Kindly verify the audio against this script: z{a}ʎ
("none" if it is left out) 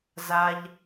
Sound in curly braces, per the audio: a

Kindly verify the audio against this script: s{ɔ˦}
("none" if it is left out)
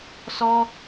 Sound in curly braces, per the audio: ɔ˦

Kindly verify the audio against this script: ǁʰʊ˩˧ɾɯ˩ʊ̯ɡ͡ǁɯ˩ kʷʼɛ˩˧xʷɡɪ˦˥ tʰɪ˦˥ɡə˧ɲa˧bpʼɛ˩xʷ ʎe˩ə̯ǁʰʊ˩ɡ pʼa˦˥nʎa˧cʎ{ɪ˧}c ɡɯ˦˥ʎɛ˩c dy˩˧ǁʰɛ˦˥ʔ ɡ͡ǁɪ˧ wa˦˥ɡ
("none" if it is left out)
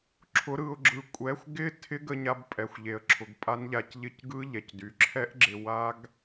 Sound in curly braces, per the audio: ɪ˦˥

